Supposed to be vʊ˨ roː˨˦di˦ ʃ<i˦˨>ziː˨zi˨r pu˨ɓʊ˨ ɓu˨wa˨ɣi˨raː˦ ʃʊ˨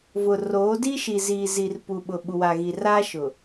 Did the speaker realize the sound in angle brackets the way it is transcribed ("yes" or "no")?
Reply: no